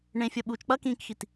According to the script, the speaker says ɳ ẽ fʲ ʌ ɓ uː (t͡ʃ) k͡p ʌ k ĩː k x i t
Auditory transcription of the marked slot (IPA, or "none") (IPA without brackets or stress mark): t͡ʃ